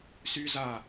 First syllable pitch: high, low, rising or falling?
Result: high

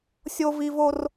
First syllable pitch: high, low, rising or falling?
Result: high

